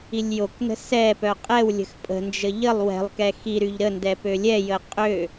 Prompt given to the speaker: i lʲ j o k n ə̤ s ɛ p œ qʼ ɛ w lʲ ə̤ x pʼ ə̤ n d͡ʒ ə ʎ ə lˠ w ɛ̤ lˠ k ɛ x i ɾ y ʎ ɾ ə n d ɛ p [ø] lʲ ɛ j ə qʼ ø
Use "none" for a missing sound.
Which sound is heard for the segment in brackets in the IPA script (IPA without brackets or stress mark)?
ø